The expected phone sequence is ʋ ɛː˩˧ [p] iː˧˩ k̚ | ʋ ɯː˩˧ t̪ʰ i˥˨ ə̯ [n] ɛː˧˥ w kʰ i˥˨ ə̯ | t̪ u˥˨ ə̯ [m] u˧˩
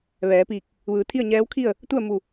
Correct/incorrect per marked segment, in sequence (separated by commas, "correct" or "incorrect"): correct, incorrect, correct